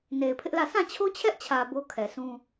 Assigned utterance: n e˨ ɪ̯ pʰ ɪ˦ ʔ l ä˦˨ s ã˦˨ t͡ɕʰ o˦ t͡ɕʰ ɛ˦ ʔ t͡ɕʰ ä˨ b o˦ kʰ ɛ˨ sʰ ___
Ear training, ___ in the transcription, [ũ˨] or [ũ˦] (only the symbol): ũ˦